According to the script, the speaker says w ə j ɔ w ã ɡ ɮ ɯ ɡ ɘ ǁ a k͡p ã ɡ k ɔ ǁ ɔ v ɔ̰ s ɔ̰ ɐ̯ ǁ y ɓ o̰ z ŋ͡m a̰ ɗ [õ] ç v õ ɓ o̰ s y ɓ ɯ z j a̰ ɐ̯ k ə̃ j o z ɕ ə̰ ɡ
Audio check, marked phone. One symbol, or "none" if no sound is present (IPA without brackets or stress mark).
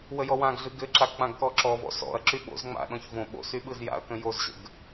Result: ɔ̃